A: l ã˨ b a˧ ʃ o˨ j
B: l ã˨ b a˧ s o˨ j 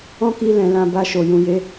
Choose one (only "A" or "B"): A